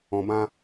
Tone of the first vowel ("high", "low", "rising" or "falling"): low